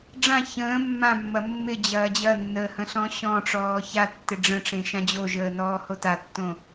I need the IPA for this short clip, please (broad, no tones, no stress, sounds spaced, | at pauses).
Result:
ɖ͡ʐ ã ç ə̃ː mː ã mː ɐ mː ɪ d͡ʑ ɐː d͡ʑ ɐ nː əː h ə̃ ɬ ɔ̃ ɕ ɔ̃ ʈ͡ʂ ɔː ç a tː ɪ ɖ͡ʐ ə̃ ʈ͡ʂ ẽ ʃ ã d͡ʑ o ʒ əː n ɔː h o t a tː õ